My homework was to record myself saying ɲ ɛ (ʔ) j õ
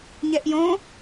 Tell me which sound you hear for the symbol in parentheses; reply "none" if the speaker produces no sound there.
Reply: ʔ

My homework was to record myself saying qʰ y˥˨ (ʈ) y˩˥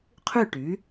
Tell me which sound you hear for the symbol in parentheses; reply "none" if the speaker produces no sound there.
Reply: ʈ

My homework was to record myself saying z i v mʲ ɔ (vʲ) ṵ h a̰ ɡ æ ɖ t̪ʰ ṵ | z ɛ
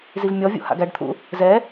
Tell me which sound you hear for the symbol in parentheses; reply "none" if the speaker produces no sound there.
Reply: vʲ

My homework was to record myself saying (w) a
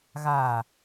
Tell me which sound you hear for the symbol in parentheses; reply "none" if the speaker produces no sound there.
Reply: ɣ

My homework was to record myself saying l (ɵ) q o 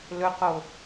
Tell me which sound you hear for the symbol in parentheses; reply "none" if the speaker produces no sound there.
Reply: ɵ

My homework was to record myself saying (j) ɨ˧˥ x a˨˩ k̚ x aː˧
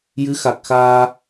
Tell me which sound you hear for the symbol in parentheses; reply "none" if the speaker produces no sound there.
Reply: j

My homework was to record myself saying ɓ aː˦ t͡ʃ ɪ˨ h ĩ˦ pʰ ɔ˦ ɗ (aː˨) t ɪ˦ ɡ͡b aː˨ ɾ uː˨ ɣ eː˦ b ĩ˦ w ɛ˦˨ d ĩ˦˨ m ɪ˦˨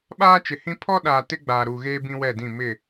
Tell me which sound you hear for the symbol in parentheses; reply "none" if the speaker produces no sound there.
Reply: aː˨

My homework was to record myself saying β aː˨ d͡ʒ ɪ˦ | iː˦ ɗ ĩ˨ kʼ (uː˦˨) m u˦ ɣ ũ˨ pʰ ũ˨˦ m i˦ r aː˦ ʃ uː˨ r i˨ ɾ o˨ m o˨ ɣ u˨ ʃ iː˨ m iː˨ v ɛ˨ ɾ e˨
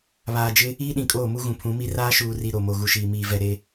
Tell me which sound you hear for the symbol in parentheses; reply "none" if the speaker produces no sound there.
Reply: oː˦˨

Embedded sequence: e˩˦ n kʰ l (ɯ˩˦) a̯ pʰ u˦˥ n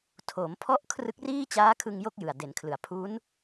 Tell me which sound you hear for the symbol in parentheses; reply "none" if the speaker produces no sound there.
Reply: ɯ˩˦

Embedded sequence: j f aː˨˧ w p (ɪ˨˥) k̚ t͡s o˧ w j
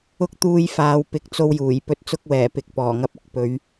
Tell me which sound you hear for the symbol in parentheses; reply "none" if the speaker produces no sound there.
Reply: ɪ˨˥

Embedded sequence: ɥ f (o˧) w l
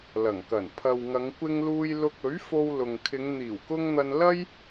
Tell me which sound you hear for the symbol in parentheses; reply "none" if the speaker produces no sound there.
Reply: o˧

